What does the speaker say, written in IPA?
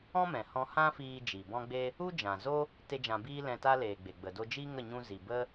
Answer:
ɔ̃˦ m ɛ̃˨ h ɔ̃˧ h ã˦ f iː˧ d͡ʒ i˨ b ɔ̃˦ ɡ͡b e˦ | u˦ d͡ʒ ã˨ z o˦ | t e˦ d͡ʒ ã˧ b iː˦ l ɛ̃˧ t a˦ l eː˨ ɡ͡b e˨ ɡ͡b ə˨ d o˧ d͡ʒ i˦ ŋ ə˦˨ ɲ ũ˧ z i˨ b ə˦

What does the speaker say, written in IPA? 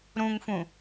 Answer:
ɾ ũ ŋ f ũ

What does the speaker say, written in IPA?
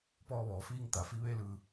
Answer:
p ɔː˧ ʋ ɔː˩ f iː˧ ŋ t̪ a˩ f i˧ ʋ e˥˨ l ɯː˧˩

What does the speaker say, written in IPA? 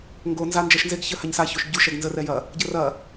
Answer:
ŋ ɡ o n z a n d͡ʒ ɜ ʃ n z e ɡ ç ə h a ɲ s a ç o ʃ ɟ u ʃ ɛ ɡ n z ə r ɛ j ɐ | ɟ ə r ɐ

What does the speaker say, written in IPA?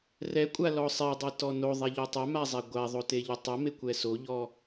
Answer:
r ɛ kʷʼ a l ɔ sˤ ɛ dˤ ɤ t ɔ n o ðˤ ɛ ʎ ɔ tˤ a m a zˤ a ɡʷ a ðˤ o t e ʎ ɤ tˤ ɤ m e kʷ ɛ s o ʎ ɔ

